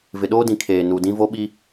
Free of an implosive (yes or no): no